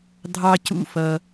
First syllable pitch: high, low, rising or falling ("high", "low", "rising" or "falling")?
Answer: high